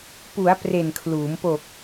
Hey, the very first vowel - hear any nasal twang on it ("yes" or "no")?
no